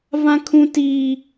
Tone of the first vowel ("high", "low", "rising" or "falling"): high